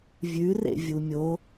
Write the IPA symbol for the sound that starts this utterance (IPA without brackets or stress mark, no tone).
vʲ